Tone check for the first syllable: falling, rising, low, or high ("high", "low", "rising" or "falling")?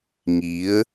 rising